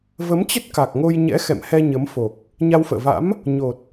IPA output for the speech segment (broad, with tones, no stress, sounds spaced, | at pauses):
v ə˨˦ m t͡ɕ ə˦˥ t̚ k a˨˩ k̚ ŋ o˧ j ɲ ɛ̰˧˥ x ɛ̰˧˨ m h ɛ˧ ɲ ə˨˦ m f o˨˩ k̚ | ɲ a˧ w f ə̰ː˧˨ v a̰˧˥ m | ɲ o˨˩ t̚